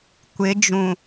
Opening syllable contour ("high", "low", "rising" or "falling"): rising